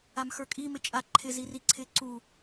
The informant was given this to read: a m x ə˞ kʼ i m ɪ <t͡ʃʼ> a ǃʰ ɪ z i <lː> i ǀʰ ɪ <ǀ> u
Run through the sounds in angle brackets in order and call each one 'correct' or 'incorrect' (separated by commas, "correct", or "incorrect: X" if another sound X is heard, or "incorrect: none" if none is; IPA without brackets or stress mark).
correct, incorrect: r, correct